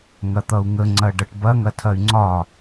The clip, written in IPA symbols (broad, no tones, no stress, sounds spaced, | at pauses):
ŋ ɐ t̪ ʌ u̯ ŋ ə ŋ͡ǀ ɐ ɖ ʌ ʈ b ɐ ŋ ɐ tʰ ɐ y̯ ŋ͡ǀ ɒ